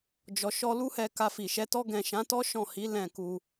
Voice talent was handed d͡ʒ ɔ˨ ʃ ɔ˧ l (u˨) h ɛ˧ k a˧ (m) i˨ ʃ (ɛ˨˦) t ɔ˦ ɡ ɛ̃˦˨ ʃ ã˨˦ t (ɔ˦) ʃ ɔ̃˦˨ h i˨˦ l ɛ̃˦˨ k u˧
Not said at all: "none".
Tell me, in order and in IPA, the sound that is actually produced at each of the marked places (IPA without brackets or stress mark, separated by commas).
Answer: u˦, f, ɛ˨˦, ɔ˦